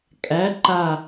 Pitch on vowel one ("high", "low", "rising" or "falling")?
rising